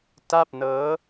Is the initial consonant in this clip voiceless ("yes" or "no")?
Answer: yes